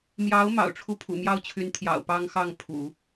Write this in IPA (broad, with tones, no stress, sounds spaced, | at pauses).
m j ɑ˧˥ ʊ̯ m ɑ̰˨˩ ʊ̯ ʈ͡ʂʰ u˥˩ pʰ ṵ˨˩ m j ɑ˥˩ ʊ̯ t͡ɕʰ y˧˥ n t̪ʰ j ɑ̰˨˩ ʊ̯ p ɑ˥ ŋ x ɑ˥˩ ŋ pʰ ṵ˨˩˦